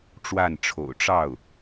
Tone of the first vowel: falling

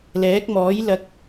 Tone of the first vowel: rising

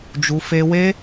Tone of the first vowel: high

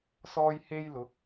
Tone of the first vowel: high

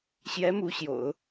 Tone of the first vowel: rising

